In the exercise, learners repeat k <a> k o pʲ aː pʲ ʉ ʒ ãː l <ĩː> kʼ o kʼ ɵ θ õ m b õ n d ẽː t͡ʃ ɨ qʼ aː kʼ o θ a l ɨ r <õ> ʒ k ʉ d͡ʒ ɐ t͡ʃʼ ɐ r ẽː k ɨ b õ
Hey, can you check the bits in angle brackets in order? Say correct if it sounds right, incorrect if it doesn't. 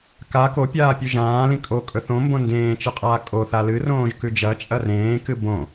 correct, incorrect, incorrect

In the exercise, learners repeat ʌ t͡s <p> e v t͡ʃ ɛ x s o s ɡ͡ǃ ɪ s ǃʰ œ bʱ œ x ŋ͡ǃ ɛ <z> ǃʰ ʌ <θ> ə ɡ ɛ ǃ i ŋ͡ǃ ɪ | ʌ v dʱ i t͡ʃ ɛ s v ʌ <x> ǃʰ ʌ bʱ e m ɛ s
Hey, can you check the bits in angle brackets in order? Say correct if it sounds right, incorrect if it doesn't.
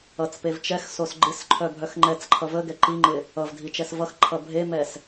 correct, incorrect, incorrect, correct

